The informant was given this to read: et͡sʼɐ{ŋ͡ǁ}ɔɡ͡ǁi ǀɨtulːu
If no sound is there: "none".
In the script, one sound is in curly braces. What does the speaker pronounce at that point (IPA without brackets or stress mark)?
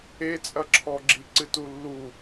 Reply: ǁʰ